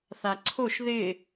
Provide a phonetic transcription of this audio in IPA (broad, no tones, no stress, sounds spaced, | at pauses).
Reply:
θ a ǀʰ o ʃ ð ɪ